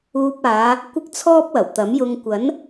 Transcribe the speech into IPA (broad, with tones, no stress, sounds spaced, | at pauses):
uː˧ p̚ aː˨˧ | kʷ ɪ˥ k̚ t͡sʰ ɔː˥ p̚ w ɐ˨˩ w t̪ ɐ˨˥ m j ʊ˧ ŋ kʷ ɐ˨˥ n